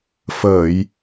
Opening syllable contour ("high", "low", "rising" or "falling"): low